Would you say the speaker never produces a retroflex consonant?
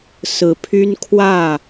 yes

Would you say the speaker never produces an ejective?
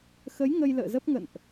yes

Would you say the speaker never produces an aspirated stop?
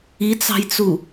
yes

